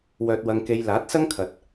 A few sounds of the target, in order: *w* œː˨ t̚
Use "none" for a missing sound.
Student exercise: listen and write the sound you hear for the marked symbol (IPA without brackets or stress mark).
w